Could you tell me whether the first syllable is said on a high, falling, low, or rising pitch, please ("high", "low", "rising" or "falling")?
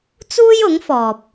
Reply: high